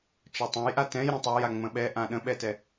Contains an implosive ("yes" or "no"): yes